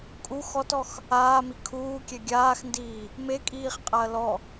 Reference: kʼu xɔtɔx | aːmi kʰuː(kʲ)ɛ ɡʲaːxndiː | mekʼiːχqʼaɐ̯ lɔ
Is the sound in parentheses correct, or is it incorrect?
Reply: correct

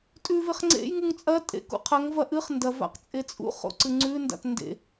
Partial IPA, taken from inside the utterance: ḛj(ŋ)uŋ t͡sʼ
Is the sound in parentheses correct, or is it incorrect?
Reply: correct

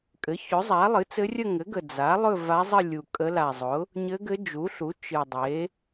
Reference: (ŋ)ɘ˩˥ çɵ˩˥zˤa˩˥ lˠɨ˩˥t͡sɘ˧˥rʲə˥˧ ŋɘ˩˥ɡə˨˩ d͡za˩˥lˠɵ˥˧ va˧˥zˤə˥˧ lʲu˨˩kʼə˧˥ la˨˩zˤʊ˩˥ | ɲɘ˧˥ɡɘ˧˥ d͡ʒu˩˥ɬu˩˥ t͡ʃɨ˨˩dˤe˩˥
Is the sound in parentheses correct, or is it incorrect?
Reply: incorrect: kʼ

